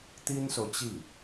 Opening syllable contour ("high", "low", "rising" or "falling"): high